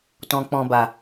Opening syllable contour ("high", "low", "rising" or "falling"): low